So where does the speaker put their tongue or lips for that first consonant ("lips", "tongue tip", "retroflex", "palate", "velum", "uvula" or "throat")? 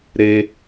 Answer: tongue tip